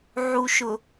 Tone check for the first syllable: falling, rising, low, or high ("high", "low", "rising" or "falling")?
low